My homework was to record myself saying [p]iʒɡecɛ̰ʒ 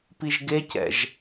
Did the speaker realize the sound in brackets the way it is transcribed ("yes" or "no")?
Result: yes